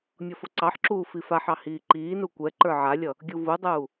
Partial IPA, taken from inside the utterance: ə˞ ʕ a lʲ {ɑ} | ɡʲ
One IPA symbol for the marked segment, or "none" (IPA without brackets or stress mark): ʌ